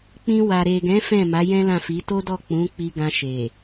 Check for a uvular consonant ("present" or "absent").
absent